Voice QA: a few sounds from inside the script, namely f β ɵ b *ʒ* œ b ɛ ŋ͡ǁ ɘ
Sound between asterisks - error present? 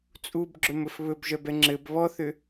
no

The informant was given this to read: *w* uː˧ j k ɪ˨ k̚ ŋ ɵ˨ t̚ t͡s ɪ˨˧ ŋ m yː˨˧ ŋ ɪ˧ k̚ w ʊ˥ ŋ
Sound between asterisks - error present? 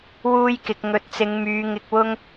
no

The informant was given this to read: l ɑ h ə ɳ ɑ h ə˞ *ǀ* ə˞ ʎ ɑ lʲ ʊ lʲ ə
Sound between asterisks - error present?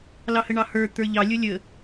yes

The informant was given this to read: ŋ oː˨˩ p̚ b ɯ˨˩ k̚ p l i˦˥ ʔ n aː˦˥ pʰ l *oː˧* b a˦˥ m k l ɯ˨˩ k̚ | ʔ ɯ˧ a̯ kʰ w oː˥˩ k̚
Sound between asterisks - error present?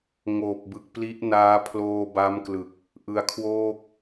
no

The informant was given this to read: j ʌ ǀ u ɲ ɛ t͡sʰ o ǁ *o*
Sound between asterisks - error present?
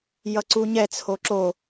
no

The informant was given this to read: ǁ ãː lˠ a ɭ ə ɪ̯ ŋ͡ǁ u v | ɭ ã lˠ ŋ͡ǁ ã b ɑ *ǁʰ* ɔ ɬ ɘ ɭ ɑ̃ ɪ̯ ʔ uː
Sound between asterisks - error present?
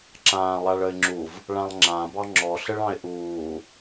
yes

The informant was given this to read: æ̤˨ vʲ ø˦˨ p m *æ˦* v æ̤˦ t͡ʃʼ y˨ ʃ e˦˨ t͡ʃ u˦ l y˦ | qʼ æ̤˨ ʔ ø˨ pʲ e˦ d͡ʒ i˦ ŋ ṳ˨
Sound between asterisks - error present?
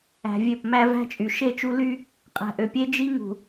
no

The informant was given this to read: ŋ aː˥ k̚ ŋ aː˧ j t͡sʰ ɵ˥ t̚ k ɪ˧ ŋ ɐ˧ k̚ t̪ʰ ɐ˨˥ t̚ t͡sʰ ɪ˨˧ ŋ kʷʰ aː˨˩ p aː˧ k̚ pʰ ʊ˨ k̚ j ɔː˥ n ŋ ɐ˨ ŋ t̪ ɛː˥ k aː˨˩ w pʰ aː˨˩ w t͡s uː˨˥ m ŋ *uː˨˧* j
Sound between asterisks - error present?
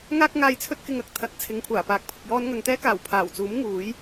yes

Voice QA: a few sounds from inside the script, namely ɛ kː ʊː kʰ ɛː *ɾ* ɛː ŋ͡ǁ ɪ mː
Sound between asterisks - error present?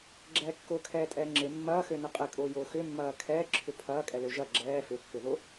yes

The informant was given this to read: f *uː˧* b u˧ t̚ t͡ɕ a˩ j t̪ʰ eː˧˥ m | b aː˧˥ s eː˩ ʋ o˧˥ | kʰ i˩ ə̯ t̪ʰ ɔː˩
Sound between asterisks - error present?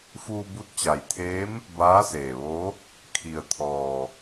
no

